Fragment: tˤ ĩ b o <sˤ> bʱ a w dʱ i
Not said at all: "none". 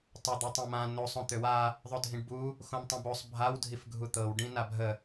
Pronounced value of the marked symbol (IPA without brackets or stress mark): sˤ